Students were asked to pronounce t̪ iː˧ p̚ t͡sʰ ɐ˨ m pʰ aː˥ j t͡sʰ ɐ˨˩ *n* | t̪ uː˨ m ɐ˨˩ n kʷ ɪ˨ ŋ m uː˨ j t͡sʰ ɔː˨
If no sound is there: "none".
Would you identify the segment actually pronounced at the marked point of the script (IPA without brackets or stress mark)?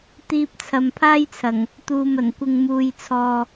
ŋ